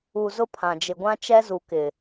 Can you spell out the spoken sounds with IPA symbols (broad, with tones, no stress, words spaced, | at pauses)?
u˨ zʊ˦pʰã˨d͡ʒɪ˨ɡʷã˦ t͡ʃɛ˦zu˨kɪ˨